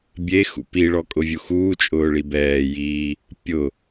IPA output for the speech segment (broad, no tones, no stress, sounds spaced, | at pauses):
bʲ e x ṵ p i ɭ ɔ kʼ ʊ vʲ u x uː t͡ʃʼ ʊː ɭ i b ɛː j iː | pʲ ʊ